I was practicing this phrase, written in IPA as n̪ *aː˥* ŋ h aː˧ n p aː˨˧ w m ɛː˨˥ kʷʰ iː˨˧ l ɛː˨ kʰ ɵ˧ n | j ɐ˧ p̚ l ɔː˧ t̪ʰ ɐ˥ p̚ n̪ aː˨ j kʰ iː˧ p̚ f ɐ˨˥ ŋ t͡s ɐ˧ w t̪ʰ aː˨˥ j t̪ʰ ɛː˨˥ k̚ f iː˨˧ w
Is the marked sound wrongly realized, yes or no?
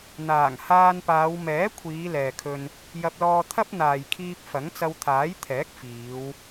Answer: yes